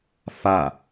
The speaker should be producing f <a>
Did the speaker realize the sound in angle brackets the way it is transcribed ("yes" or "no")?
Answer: yes